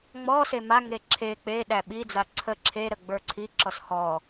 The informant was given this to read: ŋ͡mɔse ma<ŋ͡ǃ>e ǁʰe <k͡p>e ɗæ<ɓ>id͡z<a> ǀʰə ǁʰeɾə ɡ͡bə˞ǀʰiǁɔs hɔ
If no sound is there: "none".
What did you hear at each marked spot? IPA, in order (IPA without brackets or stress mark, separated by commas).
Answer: ŋ, k͡p, ɓ, a